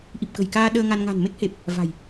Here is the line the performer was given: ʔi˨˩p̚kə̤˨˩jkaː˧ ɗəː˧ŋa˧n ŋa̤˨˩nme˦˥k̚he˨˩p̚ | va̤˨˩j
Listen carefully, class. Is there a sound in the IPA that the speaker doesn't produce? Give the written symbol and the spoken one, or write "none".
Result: none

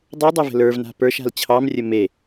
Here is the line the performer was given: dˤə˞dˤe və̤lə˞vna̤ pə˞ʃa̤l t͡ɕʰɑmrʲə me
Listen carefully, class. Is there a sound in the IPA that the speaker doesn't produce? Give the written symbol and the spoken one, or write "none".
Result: none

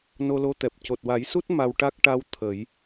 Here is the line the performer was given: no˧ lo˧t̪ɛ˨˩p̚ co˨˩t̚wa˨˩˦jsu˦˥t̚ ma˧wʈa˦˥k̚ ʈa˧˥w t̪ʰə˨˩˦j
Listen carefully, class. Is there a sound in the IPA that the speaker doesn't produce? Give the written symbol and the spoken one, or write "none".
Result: none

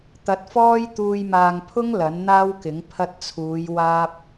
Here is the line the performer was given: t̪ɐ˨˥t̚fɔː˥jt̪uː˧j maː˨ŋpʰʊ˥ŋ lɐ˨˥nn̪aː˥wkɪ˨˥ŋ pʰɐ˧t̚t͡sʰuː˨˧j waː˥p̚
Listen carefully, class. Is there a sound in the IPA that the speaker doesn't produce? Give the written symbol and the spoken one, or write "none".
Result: none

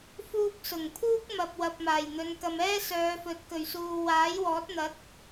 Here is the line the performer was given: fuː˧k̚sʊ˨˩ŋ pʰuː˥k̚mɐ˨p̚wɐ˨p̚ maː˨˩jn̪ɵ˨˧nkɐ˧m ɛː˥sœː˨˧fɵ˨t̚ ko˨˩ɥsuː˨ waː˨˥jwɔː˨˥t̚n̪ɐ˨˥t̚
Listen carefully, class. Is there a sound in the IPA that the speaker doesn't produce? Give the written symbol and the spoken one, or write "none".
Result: o˨˩ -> ɵ˨˩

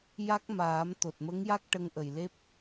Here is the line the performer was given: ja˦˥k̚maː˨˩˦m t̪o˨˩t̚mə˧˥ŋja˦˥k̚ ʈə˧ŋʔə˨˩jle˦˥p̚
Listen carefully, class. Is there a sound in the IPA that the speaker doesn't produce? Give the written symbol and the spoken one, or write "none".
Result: none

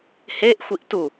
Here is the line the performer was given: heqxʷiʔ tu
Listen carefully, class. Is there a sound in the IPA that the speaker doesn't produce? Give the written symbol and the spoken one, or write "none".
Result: q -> ʔ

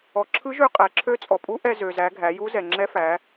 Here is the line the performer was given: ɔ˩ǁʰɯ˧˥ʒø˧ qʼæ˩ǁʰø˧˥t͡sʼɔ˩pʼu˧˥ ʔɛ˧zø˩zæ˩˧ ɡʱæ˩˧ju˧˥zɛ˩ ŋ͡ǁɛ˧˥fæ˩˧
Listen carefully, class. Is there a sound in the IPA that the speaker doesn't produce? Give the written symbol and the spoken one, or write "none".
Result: none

